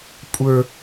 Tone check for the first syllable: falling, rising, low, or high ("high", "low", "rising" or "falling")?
high